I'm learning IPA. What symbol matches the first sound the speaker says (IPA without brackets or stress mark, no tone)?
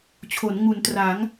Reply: t͡ɕʰ